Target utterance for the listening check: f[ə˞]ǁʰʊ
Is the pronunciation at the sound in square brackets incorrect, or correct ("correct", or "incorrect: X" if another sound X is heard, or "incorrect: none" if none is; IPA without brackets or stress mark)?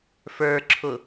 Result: correct